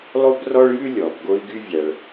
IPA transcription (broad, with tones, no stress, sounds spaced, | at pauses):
lˠ o˥ b r ɔ˥ ɭ j ʉ˥ lʲ ɔ˩ b ɡ o˧ i̯ ɡ y˧ vʲ æ˩ ɭ